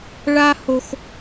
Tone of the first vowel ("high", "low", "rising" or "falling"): high